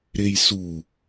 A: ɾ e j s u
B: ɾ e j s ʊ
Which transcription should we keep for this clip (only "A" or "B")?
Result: A